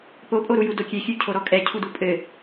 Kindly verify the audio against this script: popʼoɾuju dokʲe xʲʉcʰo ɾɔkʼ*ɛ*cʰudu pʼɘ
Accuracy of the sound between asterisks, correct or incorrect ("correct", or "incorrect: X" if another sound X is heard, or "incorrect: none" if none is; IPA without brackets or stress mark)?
correct